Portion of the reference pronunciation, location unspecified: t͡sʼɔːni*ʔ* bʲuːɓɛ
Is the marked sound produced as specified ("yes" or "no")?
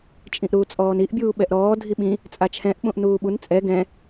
yes